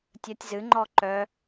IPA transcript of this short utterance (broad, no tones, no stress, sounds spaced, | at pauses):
tʲ ə tʲ z ɨ ŋ͡ǃ ɔ ǃ œ